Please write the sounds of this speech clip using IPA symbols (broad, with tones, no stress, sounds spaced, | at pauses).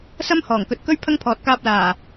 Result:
s ɐ˥ m h ɔː˨˩ ŋ k ɵ˨ t̚ k ɵ˥ ɥ pʰ ɐ˥ ŋ pʰ ɔː˨ t̚ k aː˧ p̚ l aː˨˩